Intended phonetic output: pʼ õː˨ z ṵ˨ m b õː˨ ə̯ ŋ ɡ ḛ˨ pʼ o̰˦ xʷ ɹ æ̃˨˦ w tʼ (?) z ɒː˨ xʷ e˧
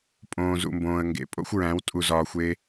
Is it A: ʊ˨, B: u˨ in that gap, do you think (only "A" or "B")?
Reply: B